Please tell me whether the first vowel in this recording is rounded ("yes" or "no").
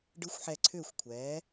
no